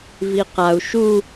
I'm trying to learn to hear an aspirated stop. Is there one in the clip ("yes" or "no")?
no